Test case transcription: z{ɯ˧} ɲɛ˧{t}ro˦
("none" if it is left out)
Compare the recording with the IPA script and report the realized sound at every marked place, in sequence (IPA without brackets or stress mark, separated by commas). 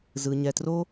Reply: ɯ˧, t